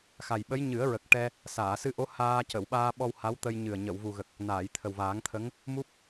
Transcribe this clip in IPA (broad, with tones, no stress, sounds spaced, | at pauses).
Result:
x a˨˩ j ɓ ə˧˥ j ɲ ɨ˨˩˦ ə̯ ɹ ə˨˩ k̚ ʈ ɛ˧ | s aː˨˩˨ s ɨ˧ ʔ o˧˥ h aː˧ c ə˨˩˨ w ɓ aː˧ ɓ ɔ˧ w h a˧˥ w t̪ ə˧ j ɲ ɨ˨˩ ə̯ ɲ ə˨˩˨ w v u˨˩ ɣ ə˨˩ k̚ | n aː˨˩˨ j t̪ʰ ə˨˩ w v aː˨˩˦ ŋ t̪ʰ ə˧˥ ŋ | m u˦˥ p̚